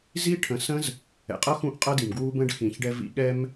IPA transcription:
z i˦ ʈʰ ə̃˨˦ s ə̃˦ z | ɛ̰˨ qʼ ʌ˦ x ũ˦ ʔ qʼ ʌ˦ d i˨ m ɡ w u˦ b ə̃˦ ɖ x ĩ˨ ç ɖ ɛ˧ v ḭ˧ ɠ ɛ˦ m

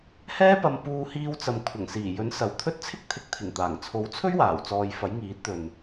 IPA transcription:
h ɛː˥ p ɐ˧ m p uː˧ h iː˧ w t͡s ɐ˨ m kʷʰ ɐ˨˩ ŋ s iː˨˩ j ɵ˨˥ n s ɐ˨˧ w t̪ʰ ɵ˥ t̚ t͡sʰ ɪ˥ k̚ t̪ʰ ɪ˨˥ k̚ t̪ʰ ɪ˨˩ ŋ t̪ aː˨˩ ŋ t͡sʰ o˨˥ w t͡sʰ ɵ˥ ɥ w aː˨˩ w t͡s ɔː˨ j f ɐ˨˥ j ŋ iː˨˥ t̚ t̪ ɵ˨ n

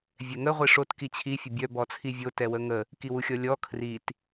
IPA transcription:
vʲ ɛ ŋ ə ʁʷ i ʂ o t k i t͡ɕʰ i fʲ ə bʲ œ b ɔ t͡sʰ i vʲ o t ɛ w ə ŋ ə | k i w u xʲ ɔ lʲ ɔ kʰ r i t

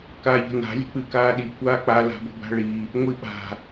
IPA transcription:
k aː ʎ ə̤ n a̤ lʲ ə̤ k͡p ɨ k aː ɗ i kʷ aː k͡p a l a̤ b ə̤ b a̤ ɭ i | ŋʷ i ɓ a̤

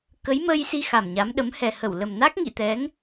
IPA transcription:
k ə˨˦ j m əː˧ j s i˧ x a˨˩ m ɲ a˨˦ m ɗ ə˨˦ m h ɛ˨˩ h ə˧˩ w l ə˨˩ m n a˦˥ k̚ ŋ ḭ˧˨ t̪ ɛ˨˦ ŋ

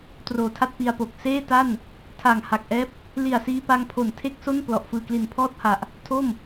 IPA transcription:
t r oː˨˩ tʰ a˥˩ t̚ p i˧ a̯ p o˨˩ k̚ s eː˥˩ t a˥˩ n | tʰ a˨˩ ŋ h a˨˩ k̚ ʔ ɛː˦˥ p̚ | l i˨˩ a̯ s iː˧ p a˧ ŋ pʰ o˨˩ n tʰ e˥˩ k̚ s o˥˩ n p l ɔ˨˩ ʔ f ɯː˨˩ k l i˨˩ n pʰ ɔː˥˩ t̚ h a˨˩ ʔ | tʰ o˥˩ m

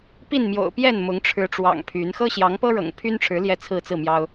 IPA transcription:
p i˥˨ n m j o̰˨˩ ʊ̯ p j ɛ˥˨ n m ʊ˨˦ ŋ ʈ͡ʂʰ ɻ̩˨˦ ʈ͡ʂ w ɑ̰˨˩ ŋ pʰ y˨˦ n x ɤ˦ ɕ j ɑ˨˦ ŋ p ɤ˦ ɻ ɤ̰˨˩ ŋ pʰ y˦ n ʈ͡ʂʰ ɻ̩˨˦ l j ɛ˥˨ t͡sʰ ɹ̩˥˨ t͡s ɹ̩˥˨ m j ɑ˦ ʊ̯

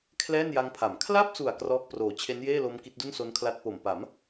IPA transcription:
kʰ l ɛː˥˩ n j a˦˥ ŋ pʰ a˩˦ m kʰ l a˥˩ p̚ s u˨˩ a̯ k r ɔː˦˥ k̚ p r oː˨˩ t͡ɕʰ e˦˥ n j eː˥˩ l o˦˥ m k i˦˥ t̚ d u˥˩ n s o˦˥ n kʰ l a˦˥ t̚ p o˨˩ m p a˩˦ m

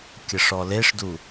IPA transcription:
kʲ ə ʂ ɔ l e ʂ d u

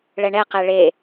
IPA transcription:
ɭ ɛ ɳ ɛ q ɛ ɭ e

